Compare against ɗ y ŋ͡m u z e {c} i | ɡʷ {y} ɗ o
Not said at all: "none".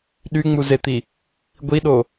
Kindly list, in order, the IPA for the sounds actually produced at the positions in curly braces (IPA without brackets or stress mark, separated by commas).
t̪, i